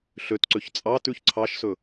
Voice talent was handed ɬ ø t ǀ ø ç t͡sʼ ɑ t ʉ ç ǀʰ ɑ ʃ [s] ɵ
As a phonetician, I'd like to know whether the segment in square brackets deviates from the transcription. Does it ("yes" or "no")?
no